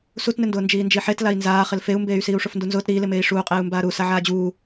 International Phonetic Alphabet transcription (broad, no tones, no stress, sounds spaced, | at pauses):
s u t n ɪ n d ʊː n d͡ʒ iː n d͡ʒ i ħ e t l a i̯ n z aː χ ɪ l f e u̯ m b eː y̯ s iː u̯ ʂ ʊ f n d u n z ʊː t ɾ iː l ɪ m eː i̯ ʂ uː qʼ eː u̯ m b aː ɾ u s a ʕ aː d͡ʑ uː